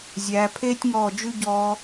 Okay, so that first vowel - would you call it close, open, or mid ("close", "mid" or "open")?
open